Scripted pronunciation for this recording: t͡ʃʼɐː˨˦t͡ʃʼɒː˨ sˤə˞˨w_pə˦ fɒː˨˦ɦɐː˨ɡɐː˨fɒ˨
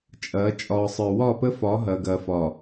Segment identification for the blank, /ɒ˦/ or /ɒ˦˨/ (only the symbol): ɒ˦˨